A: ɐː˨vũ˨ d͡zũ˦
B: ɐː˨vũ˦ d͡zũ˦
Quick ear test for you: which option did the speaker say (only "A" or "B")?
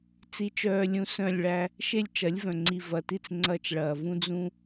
B